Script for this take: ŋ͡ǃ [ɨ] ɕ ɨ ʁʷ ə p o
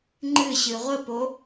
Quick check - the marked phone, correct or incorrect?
correct